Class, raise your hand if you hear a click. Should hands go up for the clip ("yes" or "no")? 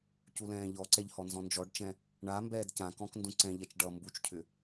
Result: yes